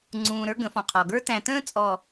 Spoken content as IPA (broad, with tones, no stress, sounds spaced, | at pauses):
ŋ͡ǀ ũː˨ ɾ ə˞˦ ɡ ə̃˨˦ f ɔ̃˨ qʰ ɔ˨ ɡ ə˞˦ t æ̃˨ t ə̃ː˦ t͡sʼ ɔ˨